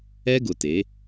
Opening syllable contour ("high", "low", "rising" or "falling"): high